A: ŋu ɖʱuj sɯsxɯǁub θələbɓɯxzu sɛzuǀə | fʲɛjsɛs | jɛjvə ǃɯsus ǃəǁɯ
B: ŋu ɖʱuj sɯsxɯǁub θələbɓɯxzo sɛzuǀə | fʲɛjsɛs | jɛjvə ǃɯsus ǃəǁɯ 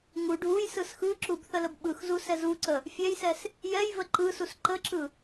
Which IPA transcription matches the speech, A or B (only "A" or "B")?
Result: A